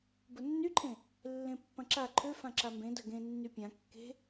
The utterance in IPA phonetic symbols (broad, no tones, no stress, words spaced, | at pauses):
bʊnːyǃʰẽ | lːẽpːɐ̃ǁa ǃʰøfã ǁambẽdɐ ɡẽ nːypʲã kːe̤